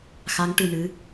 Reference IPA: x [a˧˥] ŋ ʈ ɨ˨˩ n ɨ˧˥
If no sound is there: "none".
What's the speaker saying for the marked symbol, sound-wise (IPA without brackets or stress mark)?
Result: a˧˥